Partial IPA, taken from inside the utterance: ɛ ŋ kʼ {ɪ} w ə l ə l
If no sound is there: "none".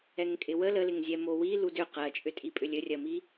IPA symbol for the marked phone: ɪ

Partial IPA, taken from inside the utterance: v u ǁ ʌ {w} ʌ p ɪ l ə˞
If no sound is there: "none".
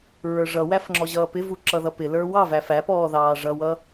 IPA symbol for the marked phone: ð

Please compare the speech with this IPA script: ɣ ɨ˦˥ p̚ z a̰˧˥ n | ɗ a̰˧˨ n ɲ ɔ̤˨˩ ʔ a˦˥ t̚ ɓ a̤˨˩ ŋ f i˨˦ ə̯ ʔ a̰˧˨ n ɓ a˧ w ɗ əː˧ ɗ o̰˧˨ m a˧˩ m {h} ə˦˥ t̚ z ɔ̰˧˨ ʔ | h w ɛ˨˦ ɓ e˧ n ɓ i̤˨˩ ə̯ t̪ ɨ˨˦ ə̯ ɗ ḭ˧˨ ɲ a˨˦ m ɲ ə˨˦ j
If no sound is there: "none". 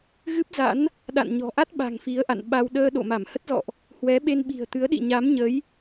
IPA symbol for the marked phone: h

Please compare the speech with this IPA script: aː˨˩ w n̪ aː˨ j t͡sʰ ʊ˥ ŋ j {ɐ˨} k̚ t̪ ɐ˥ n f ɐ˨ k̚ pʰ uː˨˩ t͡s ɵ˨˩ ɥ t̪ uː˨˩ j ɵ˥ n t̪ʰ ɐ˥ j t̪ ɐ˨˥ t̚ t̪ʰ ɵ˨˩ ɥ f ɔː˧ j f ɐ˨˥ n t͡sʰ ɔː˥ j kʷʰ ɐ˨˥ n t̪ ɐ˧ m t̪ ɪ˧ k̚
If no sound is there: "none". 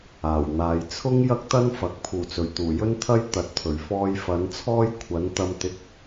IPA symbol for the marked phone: ɐ˥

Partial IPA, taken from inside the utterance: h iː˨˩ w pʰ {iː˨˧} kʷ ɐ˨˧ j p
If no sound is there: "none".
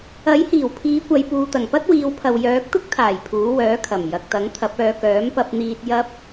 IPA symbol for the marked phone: iː˨˧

